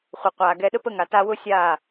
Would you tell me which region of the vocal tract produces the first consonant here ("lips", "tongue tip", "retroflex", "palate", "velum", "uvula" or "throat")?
uvula